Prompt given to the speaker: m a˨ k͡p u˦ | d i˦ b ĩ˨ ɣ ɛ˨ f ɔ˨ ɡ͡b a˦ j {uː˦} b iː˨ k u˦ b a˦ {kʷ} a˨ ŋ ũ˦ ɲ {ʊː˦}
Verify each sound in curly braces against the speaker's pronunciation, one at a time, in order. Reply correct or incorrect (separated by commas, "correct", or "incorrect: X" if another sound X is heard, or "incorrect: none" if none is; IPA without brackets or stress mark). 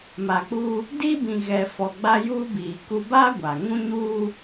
correct, incorrect: ɡʷ, incorrect: uː˦